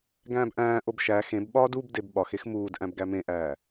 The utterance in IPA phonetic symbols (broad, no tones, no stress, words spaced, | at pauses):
ɡæ̃ːbʔæ̃ːʔob ʃæ xẽbɓɒːd ubdeb ɓɒxex muːd ʔæ̃bɡæmẽʔæː